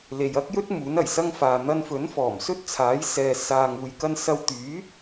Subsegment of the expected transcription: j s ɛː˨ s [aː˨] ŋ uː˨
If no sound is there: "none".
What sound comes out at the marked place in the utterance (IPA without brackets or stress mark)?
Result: aː˨